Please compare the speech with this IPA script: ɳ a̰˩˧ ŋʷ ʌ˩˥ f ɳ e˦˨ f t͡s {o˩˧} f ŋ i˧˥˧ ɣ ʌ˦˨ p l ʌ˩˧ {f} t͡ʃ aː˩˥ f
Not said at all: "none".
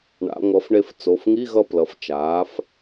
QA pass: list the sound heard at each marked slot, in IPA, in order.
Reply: o˩˧˩, f

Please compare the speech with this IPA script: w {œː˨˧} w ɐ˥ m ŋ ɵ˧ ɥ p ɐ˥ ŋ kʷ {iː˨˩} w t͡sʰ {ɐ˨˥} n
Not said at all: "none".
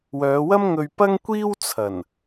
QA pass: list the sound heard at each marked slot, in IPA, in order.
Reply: œː˨˧, iː˥, ɐ˨˩

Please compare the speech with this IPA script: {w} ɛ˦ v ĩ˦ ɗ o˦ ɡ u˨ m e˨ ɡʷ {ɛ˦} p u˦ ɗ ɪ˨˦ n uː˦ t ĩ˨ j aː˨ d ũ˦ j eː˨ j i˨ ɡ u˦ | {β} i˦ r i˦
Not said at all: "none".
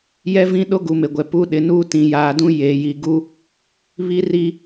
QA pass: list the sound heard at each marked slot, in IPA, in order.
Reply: j, ɛ˨, β

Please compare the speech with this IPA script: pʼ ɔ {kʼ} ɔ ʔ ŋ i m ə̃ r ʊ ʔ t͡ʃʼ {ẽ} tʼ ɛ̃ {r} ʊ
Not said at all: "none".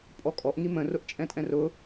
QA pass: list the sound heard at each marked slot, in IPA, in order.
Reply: kʼ, ɛ̃, r

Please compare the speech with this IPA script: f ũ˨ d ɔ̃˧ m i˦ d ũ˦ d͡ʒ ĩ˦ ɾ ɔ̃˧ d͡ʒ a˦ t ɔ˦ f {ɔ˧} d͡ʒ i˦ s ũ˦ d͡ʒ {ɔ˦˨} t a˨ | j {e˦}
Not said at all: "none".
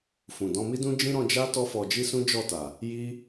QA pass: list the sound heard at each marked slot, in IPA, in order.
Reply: ɔ˧, ɔ˦˨, i˦

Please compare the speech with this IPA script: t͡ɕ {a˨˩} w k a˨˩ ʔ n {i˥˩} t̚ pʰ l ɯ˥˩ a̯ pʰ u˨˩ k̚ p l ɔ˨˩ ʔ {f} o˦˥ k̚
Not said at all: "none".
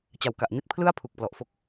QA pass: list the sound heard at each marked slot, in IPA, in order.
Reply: a˨˩, i˥˩, f

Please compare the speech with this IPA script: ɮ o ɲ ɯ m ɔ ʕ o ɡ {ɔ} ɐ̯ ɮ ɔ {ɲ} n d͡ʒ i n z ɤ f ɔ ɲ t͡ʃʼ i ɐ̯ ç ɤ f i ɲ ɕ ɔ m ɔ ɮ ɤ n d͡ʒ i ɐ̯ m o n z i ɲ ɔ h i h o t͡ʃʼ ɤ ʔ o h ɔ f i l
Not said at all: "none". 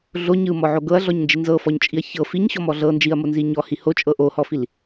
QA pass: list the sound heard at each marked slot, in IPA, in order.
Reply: ɤ, ɲ

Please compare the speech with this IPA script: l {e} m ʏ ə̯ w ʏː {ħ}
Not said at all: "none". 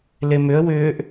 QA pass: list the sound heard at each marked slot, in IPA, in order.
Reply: e, ʔ

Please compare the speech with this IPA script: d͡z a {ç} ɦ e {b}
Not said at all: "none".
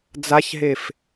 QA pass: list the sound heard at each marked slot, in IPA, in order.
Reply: ç, f

